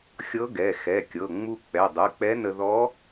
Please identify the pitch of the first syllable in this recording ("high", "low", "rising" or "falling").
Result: rising